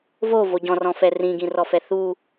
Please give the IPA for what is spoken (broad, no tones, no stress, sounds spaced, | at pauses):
v o v o ɟ ɔ̃ r ɔ̃ f ɛ r ĩ ɡ ĩ r ɔ f ɛ θ u